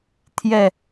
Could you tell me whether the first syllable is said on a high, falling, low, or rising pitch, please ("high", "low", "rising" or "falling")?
falling